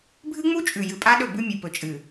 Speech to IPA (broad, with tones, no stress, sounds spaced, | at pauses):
bʱ ɨ˦ ŋ͡m u˦ t͡ʃʼ ʉ˨ j ɨ˨ pʼ a˦ ɗ ɵ˦˨ b ʉ˦ mʲ ɨ˨ p ɵ˨ t͡ʃʼ ɨ˨